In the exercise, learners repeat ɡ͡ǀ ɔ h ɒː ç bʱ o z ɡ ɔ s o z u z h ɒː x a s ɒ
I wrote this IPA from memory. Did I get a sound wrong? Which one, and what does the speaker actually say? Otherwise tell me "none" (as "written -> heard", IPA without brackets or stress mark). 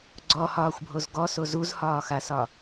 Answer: ç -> xʷ